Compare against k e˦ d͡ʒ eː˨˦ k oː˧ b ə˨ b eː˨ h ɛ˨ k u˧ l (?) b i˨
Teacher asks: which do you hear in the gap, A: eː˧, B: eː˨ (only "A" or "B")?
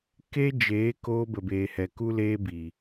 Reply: A